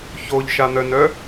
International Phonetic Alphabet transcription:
ç o ʎ ʃ a n̪ œ n œ

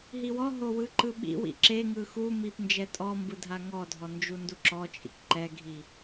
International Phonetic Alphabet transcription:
ɦ i w ɔ ɦ o w ɯ ǃ ɯ ɓ ḭ w ḭ ǁ e ŋ ɯ x u m i p n d͡ʒ ɛ tʼ ɔ m b ɯ dʱ a ŋ ɔ dʱ ɔ n d͡ʒ u n d u ǁ ɔ t͡ʃʼ ḭ k ǃ ɛ ɡʱ i

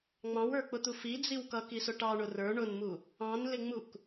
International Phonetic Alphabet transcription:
ŋ͡m ɑ̃ w ə˞ k͡p ʊ t̪ u f i d͡z i w k ʌ k i s ʊ ʈ ɑ ɳ ʊ r ə˞ ɳ ʊ n m u | ɑ̃ n l ɪ ŋ͡m u k

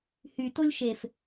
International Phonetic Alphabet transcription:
h y t o lʲ ʃ e f

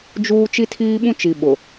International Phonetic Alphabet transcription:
d͡ʒ uː˦ t͡ʃ i˦ tʰ iː˦ ɓ ũ˦ t͡ʃ i˨ ɓ ʊ˨

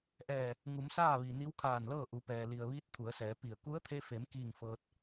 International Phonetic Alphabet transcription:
ʔ ɛː˧˩ | ŋ u˩˧ m s aː˥˨ ʋ i˩ n i˧˥ w kʰ aː˧˩ n l ɤː˥˨ ʔ u˩˧ p ɛː˩ l i˩ ə̯ ʋ iː˧˥ t̚ t̪ʰ u˩˧ ə̯ s ɛː˩˧ p i˧˩ ə̯ k u˧˥ ə̯ t̪ʰ e˧ f e˩˧ m k iː˥˨ ŋ f ɤː˧ t̚

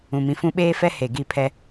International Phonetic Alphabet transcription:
ũ˨ m ĩ˨ f ũ˦ ɓ eː˦ f ɛ˦ h e˨ ɡ i˦˨ pʰ ɛ˦

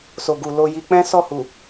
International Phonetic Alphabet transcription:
s o˨ ɡ u˨ l o˧ j i˧ k͡p ɛ̃˦ s ɔ˦˨ h u˨

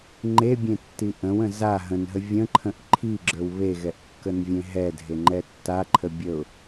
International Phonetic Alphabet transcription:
ŋ͡ǃ e bʲ ẽ tː i ʔ ə̃ w ə̃ z a ɦ ə̃ n ɦ ə vʲ ə̃ ǃʰ ə̃ ʔ ǃʰ i ɡ͡ǁ ə˞ w β e ɣ ɛ ʔ kː ə n vʲ ẽ ɦ ɛ dʱ e ŋ͡ǃ ɛ tː a ǃʰ ə bʲ ə ʊ̯

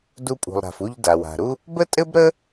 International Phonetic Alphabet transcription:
d u˧ pʼ ṳ˩ lˠ ɾ a̤˩ f u˧ ʎ d a˩ w a̤˩ ɾ u˥ | b ə˥ tʼ ɘ˥ b ɾ ə˥

